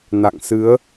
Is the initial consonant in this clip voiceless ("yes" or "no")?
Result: no